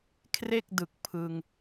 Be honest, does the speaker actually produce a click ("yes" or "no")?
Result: no